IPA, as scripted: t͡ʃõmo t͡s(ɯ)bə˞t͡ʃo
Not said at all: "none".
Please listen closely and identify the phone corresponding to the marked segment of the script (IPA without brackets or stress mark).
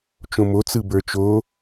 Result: ɯ